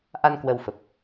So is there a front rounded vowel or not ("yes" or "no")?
no